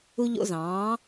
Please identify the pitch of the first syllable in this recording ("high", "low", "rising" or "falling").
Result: high